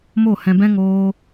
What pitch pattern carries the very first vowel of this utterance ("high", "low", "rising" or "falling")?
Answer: falling